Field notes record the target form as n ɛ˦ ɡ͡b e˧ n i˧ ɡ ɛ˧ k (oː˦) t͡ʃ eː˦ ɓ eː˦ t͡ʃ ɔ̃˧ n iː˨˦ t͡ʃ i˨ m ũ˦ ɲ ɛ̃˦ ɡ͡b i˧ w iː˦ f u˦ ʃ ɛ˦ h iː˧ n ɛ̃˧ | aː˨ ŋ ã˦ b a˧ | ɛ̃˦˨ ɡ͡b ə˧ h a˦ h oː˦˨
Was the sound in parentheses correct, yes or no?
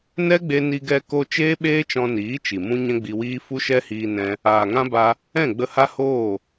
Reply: no